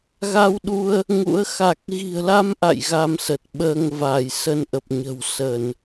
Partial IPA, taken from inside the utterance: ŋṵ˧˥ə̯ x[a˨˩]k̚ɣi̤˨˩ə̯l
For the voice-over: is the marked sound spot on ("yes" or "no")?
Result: yes